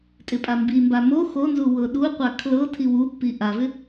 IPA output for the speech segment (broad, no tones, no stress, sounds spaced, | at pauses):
tʼ ɪ pʼ a m b i m b a m o x o n z u w ɤ ɗ u qʷ a kʰ l ɤ tʰ i w u pː i ʔ a v ɪ